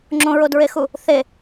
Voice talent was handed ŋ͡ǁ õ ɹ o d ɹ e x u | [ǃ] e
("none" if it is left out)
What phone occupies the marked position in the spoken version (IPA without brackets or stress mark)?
θ